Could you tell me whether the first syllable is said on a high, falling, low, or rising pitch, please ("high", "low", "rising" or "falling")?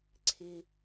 high